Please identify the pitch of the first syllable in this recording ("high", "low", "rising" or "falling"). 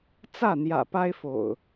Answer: falling